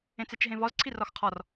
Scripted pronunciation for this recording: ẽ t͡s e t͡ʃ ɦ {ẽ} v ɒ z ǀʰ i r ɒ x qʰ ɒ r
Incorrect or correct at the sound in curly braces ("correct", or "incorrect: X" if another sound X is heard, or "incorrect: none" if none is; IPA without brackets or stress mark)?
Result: correct